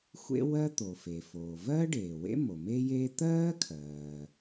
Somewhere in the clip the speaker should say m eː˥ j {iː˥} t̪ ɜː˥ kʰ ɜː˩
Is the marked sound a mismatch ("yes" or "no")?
yes